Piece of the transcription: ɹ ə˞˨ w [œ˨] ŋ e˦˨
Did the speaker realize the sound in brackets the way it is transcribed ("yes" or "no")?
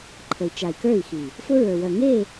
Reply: yes